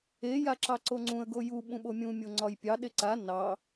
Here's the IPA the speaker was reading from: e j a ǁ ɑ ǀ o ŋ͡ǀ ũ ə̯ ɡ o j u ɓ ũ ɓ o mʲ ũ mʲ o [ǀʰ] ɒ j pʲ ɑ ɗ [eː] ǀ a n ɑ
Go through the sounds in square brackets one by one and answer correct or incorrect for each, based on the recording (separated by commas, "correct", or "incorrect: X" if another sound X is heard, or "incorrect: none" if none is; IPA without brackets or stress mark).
incorrect: ŋ͡ǀ, incorrect: e